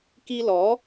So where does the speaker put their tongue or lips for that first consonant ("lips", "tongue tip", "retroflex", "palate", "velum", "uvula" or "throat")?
velum